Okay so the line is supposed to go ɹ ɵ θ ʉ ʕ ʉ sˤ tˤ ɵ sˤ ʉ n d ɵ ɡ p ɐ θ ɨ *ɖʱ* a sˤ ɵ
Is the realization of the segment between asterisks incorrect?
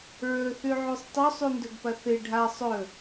no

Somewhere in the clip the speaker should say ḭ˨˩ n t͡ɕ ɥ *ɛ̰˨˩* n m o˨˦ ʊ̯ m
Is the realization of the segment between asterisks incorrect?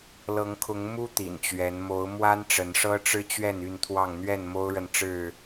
yes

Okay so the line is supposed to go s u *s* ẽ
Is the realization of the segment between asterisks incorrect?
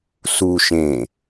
yes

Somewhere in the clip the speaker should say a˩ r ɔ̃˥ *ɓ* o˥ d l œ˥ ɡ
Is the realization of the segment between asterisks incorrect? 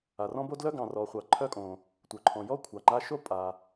yes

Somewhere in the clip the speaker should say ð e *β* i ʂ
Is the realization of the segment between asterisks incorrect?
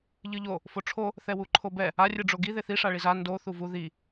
yes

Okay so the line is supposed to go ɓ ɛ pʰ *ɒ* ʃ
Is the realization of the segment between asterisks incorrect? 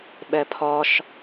no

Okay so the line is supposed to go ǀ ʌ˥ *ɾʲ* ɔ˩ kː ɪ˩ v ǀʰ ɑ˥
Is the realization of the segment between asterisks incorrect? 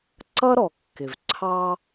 yes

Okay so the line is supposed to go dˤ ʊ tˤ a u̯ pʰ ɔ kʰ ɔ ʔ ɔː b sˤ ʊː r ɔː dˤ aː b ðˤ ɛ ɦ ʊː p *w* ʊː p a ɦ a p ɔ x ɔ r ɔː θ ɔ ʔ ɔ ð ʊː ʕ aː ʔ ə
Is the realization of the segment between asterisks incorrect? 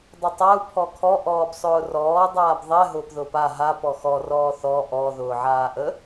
yes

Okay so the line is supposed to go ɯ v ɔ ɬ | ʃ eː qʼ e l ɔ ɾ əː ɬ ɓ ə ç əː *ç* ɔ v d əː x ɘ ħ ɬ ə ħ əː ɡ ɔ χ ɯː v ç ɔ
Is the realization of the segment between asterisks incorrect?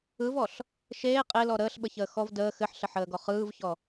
yes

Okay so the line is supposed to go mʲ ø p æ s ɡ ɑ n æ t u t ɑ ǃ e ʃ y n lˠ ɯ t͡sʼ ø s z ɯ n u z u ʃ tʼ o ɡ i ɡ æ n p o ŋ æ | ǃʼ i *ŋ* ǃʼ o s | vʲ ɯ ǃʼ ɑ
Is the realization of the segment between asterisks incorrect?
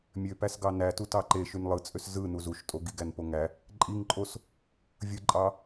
no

